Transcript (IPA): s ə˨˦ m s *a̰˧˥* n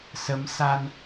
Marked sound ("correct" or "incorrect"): incorrect